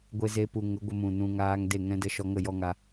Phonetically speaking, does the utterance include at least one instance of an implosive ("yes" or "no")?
no